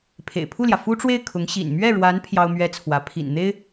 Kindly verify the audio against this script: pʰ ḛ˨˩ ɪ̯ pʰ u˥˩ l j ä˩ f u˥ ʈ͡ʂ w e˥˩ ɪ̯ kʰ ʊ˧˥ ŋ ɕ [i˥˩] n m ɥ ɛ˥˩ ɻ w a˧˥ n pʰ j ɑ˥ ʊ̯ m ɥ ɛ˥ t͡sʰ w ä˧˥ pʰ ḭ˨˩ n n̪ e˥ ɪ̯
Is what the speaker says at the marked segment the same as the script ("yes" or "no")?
no